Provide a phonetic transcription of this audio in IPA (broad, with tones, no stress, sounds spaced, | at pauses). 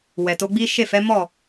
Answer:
w ɛ˨ t o˨˦ ɡ͡b i˦ ʃ e˦˨ f ɛ˨˦ m ɔ˦˨